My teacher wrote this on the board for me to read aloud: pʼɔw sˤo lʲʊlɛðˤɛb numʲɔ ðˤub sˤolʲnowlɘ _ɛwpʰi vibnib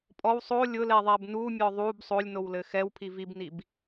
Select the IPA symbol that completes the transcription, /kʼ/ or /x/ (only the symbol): x